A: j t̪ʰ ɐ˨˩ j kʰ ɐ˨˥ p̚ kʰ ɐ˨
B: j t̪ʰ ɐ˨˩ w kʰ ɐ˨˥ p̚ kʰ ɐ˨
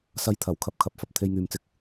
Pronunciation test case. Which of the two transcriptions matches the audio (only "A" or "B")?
B